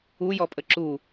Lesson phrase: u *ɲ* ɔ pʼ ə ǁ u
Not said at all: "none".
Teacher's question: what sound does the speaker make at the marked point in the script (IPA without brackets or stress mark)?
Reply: j